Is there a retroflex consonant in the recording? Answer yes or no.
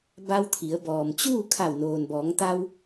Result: no